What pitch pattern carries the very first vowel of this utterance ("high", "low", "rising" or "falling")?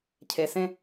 low